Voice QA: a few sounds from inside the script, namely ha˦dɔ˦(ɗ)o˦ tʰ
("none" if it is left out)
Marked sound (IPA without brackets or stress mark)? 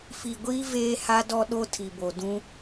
ɗ